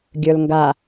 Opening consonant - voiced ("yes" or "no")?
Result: yes